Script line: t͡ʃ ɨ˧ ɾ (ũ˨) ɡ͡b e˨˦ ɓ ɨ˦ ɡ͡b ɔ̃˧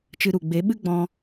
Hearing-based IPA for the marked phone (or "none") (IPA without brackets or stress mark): u˨